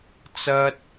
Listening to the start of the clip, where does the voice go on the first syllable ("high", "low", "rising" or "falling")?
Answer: high